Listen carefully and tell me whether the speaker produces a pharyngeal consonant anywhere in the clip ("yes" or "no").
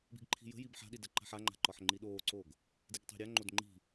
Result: yes